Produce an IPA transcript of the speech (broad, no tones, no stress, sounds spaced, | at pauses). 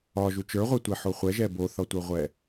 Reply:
ɒ ʒ u t͡ʃ ə˞ ʁʷ ɛ tʷ e ħ o χʷ ɛ ʒ ɛ b o θ ɒ tʷ ə˞ ʁʷ ɛ